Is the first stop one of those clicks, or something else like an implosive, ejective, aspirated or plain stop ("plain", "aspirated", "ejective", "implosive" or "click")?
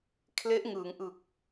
aspirated